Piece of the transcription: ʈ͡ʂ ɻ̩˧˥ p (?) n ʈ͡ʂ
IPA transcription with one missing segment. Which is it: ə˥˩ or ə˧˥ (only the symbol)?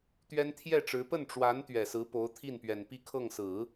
ə˥˩